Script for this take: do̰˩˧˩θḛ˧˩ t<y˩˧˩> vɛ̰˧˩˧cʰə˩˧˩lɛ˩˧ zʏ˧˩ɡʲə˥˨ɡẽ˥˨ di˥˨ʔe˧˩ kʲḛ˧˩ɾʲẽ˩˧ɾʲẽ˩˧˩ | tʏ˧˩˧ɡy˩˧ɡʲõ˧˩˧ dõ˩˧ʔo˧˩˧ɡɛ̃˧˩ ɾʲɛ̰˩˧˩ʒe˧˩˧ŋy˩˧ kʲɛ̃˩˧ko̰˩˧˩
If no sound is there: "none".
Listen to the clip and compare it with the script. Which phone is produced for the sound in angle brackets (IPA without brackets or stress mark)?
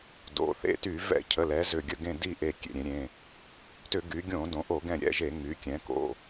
y˧˩˧